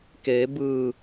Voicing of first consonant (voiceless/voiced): voiceless